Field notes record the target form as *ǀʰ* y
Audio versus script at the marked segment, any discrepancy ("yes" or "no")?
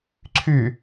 no